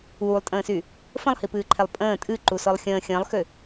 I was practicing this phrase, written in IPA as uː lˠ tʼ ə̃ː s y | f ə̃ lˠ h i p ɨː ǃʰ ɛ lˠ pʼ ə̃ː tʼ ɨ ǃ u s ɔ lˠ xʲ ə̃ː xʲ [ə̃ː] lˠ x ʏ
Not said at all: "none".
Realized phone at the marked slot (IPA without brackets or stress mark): ə̃ː